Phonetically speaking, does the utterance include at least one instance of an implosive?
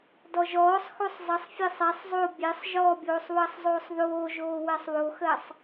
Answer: no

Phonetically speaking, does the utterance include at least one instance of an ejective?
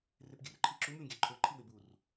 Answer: no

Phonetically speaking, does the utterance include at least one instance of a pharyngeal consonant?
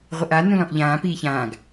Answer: no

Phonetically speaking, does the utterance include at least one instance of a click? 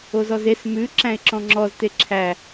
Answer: yes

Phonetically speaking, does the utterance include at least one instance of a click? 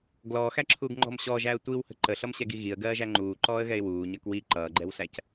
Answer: yes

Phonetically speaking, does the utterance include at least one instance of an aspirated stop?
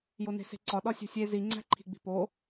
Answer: yes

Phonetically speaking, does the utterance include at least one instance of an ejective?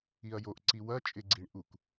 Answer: yes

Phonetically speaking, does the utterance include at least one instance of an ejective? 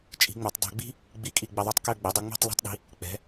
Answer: yes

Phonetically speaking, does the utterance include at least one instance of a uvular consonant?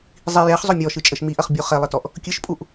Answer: yes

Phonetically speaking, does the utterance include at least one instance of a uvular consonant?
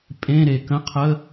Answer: yes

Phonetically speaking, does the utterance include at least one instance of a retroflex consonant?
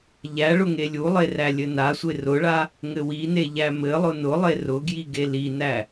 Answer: yes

